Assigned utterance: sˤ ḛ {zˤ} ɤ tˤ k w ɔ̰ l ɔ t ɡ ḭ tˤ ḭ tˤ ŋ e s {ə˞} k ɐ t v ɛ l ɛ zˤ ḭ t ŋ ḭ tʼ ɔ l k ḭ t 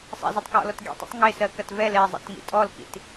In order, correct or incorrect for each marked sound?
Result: incorrect, incorrect

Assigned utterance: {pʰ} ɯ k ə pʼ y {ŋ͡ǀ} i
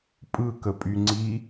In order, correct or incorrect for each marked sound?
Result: incorrect, correct

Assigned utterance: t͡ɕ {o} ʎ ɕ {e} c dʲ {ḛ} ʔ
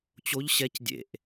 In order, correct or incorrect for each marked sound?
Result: correct, incorrect, correct

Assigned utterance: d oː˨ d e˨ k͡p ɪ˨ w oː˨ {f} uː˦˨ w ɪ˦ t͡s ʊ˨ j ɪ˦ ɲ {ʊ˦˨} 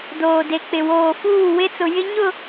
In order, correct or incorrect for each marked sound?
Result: correct, correct

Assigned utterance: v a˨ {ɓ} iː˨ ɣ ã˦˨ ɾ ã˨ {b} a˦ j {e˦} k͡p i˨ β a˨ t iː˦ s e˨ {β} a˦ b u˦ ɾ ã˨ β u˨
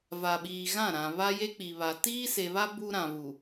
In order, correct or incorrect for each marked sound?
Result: correct, incorrect, correct, correct

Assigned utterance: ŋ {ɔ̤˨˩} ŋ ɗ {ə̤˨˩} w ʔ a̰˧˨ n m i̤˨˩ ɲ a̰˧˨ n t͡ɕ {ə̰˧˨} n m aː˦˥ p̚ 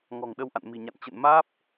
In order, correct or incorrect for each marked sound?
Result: correct, incorrect, correct

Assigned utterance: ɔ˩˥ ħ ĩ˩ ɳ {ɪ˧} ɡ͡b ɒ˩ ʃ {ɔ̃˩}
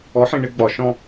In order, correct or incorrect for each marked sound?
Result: correct, incorrect

